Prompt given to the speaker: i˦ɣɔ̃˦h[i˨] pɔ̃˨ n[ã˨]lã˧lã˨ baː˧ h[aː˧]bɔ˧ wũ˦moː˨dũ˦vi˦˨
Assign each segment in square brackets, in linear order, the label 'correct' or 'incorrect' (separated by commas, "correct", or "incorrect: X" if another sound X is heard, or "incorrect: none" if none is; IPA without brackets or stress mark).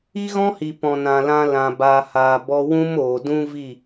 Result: correct, correct, incorrect: aː˨